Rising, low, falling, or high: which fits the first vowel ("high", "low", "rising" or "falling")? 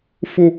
low